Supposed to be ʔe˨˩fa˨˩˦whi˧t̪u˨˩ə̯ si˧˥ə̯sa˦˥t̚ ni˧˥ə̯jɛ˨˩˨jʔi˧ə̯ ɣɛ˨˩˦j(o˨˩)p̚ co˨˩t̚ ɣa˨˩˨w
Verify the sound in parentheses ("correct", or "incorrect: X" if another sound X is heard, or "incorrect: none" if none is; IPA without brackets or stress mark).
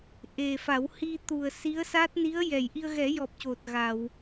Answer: incorrect: ɔ˨˩